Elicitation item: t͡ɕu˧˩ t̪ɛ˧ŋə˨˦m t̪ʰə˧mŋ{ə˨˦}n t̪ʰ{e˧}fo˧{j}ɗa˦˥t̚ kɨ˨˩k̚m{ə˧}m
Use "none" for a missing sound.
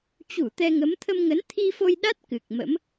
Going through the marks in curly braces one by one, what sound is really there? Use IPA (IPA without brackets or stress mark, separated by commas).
ə˨˦, i˧, j, ə̰˧˥